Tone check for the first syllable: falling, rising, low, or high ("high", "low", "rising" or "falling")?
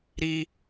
high